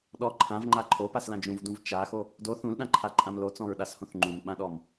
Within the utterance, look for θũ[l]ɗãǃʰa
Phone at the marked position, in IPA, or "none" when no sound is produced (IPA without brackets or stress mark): l